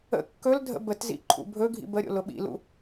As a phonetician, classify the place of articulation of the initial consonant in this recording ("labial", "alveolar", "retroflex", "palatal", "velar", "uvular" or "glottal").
velar